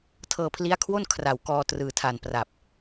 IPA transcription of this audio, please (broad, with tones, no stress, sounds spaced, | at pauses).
tʰ ɤː˧ pʰ l i˦˥ a̯ kʰ w o˥˩ n kʰ r a˨˩ w k ɔː˧ t r ɯː˨˩ tʰ a˨˩ n p r a˨˩ p̚